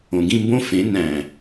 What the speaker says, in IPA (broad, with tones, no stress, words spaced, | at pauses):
õ˨˩ɡĩ˥˨mbõ˦˥ fẽ˩˥næ̃˨˩